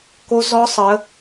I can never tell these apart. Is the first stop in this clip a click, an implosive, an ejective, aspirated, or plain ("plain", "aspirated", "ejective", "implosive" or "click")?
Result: plain